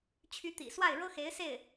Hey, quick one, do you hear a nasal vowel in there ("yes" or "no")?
no